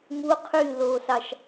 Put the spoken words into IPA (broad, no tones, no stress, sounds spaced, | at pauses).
m u qʰ y l oː s ɑ ʃ